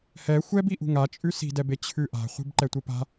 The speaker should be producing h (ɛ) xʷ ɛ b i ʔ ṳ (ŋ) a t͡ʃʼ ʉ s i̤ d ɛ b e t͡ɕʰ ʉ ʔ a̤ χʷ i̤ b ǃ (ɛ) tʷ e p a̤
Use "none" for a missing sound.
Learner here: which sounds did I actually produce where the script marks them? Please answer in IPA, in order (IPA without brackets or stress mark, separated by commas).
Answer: ɛ, ŋ, ɛ